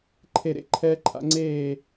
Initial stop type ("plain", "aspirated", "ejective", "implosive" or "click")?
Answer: click